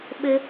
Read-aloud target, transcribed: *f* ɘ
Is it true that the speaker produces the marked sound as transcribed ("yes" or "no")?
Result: no